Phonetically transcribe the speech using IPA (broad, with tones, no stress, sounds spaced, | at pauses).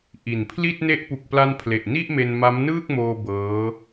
ʔ i˨˩ n pʰ l i˥˩ t̚ n e˦˥ ʔ p u˨˩ k̚ p l a˧ n pʰ l e˨˩ ʔ n i˥˩ ʔ m e˧ n m a˦˥ m n ɯː˥˩ k̚ m oː˧ b ɤː˦˥